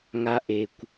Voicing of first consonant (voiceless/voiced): voiced